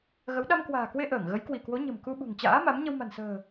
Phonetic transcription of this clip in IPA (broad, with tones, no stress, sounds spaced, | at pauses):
ɣ ə˨˦ w ɗ a˧ m k w a̤ː˨˩ k w e˧ ʔ əː˧˩ ŋ ɣ ə˨˦ j k w i˧˩ k w o˨˦ ɲ ə̤˨˩ m k u˧ ɓ ṳ˨˩ ŋ t͡ɕ a̰ː˧˥ m a˨˦ m ɲ ə˧ w m a̤˨˩ n s ə̤ː˨˩